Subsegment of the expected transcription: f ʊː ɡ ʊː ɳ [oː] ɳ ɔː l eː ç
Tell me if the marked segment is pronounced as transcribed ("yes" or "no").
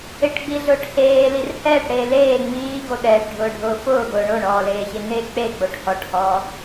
no